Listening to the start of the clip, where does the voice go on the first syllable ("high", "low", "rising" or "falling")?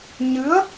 rising